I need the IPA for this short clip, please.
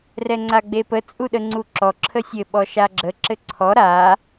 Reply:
r ɛ ŋ͡ǀ a ɡ͡b e p ə t͡sʼ u ɗ ə ŋ͡ǀ u ǁ ɔ ǁʰ ə sʲ ɘ ɓ ɔ ʃ a ɡ͡ǁ ə ǁ ɘ ǀʰ ɔ ɾ a

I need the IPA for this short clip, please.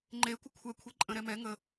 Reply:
ŋ͡ǃ e kʷ ə kʷʰ ɛ kʷʰ i ǃʼ ə̃ ɾ ɛ m ɛ ŋ ə

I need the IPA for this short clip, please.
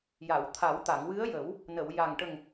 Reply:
j a˨˩˨ w t̪ʰ a˨˩˦ w t̪ a˨˩˨ ŋ w ɨ˧˥ ə̯ j ə˨˩˦ w | n ə˨˩˨ w j a˨˩ ŋ ʈ ə˨˩ ŋ

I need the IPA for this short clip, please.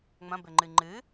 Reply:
ŋ͡m ɐ̃ b ɘ ŋ͡ǃ ɨ ŋ͡ǃ ɨ

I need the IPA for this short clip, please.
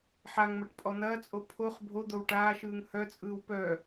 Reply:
ħ a ŋ m ɐ ʈ pʼ ɔ n̪ ɐː t͡sʼ o pʰ o χ bʱ o d̪ o w ʈ aː ʃ ɯː ŋ h œ t͡sʼ ɯː w p œ

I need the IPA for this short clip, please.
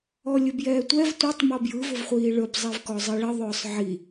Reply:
ɔ lʲ ʊ b j ɛː tʷ ɛ v tʷ ɪ tˤ m ɔ b j ɯ v ʊ v χʷ iː ɭ ɵ b zˤ i v k ɔ zˤ i ɭ ɪ ðˤ ʊː sˤ ʕ i

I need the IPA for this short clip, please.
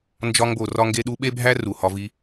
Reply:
n d͡ʒ ɒ˦ ŋ b o˨ r ɒ˥ ŋ ɡ e˥ ɗ u˦ ɓ e˥ bʱ æ˥ r u˨ h ɒ˦ v i˥

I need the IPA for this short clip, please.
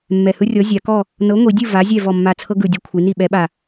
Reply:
mː ɛ˨˩ h ɯ˦ rʲ ɔ˨˥ zʲ a˩˧ k ɔ˥˨ | n ɤ˨˥ ŋʷ i˩˧ dʲ ɯ˥˨ v a˨˥ zʲ ɛ˥˨ v ɔ˥˨ mː a˥˨ t͡sʰ ɤ˦ ɡ ɯ˨˩ dʲ ɤ˦ kʷʰ i˩˧ n i˥˨ ɓ ɛ˨˥ ɓ a˨˩

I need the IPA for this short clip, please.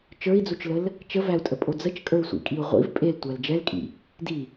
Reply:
t͡ʃ ə˞ i̯ d͡z u t͡ʃ l ə l | t͡ʃ ə v æ u̯ tʼ ə pʼ o d͡z ə t͡ʃ kʼ ə˞ y̯ sʷ ḭ kʼ i u̯ ʁʷ ḭ v pʼ e l tʷ æ l d͡ʒ ɛ l kʼ ḭ | d i

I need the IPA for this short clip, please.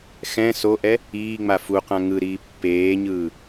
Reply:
x ɛ̃ s o ʔ ɛ | iː ŋ͡m a f u q ã ŋ ɯ ɾ iː pː eː ɲ ɯː

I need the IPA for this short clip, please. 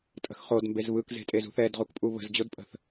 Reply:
tʼ ə̤ x χ o d m b e z β ɯ k z e̤ tʼ e z ṳ θ ɛ d ʁ u k pʼ u β ə̤ z d͡ʑ o d pʼ ə̤ θ

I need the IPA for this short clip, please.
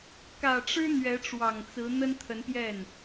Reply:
k ä˨˩ ʈ͡ʂ ɻ̩˥ n̪ ɥ ɛ˧˥ ʈ͡ʂ w ɑ˨˩ ŋ t͡s ɹ̩˧˥ n̪ ə˥ n t̪ʰ ə˧˥ n p j ɛ˥˩ n

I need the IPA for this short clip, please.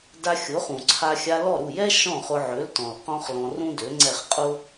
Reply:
d a˧ xʲ ʊ˩˥ χ ũ˩ ǀʰ a˧ xʲ a˧ l ɔ˥˩ ɾ u˥˩ j ɛ˥ ʃ ɔ̃˥˩ χ ʊ˧ ʕ ø˩˥ l t ɔ̃˩ l q ɔ̃˥ χ l ɔ̃˧ r ũ˥ d ø˩˥ ŋ͡ǀ ɛ˥˩ χ qʼ ʊ˥

